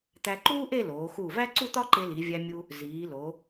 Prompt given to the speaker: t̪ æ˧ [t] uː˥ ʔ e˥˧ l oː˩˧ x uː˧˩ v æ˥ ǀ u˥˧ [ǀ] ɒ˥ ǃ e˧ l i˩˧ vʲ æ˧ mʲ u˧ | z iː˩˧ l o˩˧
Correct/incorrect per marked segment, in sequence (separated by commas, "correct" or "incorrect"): incorrect, incorrect